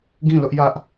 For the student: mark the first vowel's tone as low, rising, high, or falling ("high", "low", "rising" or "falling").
falling